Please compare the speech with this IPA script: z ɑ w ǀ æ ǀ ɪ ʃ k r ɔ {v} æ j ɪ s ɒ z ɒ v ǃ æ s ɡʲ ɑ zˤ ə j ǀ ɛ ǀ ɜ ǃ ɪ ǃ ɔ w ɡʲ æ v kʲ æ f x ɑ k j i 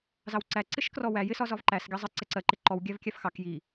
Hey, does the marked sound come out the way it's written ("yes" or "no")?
no